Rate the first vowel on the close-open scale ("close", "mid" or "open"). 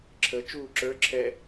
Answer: mid